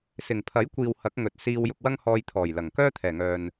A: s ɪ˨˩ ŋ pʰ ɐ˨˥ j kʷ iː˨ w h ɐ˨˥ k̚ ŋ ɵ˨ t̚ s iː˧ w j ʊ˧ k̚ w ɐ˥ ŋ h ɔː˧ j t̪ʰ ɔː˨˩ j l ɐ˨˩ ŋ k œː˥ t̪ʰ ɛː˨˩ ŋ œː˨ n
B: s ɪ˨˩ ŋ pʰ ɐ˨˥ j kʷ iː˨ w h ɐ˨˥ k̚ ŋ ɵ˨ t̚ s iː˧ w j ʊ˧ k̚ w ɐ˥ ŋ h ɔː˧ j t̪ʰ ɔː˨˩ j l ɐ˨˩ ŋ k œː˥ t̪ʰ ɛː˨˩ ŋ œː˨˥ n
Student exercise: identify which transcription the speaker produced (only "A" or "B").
A